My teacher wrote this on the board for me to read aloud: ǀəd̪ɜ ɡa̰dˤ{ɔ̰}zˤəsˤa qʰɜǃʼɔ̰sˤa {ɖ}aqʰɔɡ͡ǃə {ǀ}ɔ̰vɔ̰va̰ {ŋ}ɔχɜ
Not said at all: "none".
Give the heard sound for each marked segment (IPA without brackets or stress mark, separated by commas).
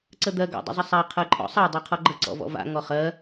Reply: ə̰, dˤ, ǀ, ŋ